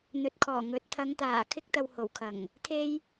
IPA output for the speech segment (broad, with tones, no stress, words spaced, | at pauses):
n̪ɵ˨t̚kʰɔː˨˩ ŋɵ˨˥t̚ t̪ʰɐ˨˧ŋt̪aː˨˩ kʰɪ˧k̚t̪ɐ˨w ho˨˩wkʰɐ˨˩ŋ | t̪ʰe˧j